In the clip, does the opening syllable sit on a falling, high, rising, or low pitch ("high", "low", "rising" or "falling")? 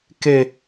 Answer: low